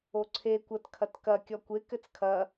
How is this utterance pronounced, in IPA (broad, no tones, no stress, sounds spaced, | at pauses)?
o ǀʰ e kʷ ɐ t kʰ ɐ t k ɐ kʲ ɔ kʷ e k ɘ t͡s kʰ ɐ